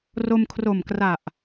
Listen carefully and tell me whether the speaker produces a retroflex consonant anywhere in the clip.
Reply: no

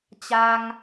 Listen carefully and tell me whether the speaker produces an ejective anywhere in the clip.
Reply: no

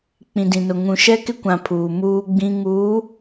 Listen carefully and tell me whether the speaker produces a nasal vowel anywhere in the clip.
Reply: yes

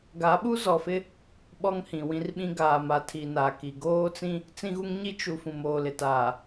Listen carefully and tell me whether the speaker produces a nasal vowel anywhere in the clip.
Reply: yes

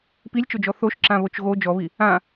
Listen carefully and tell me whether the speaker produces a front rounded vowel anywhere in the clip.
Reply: no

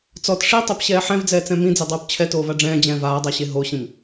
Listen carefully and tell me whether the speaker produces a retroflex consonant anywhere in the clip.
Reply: yes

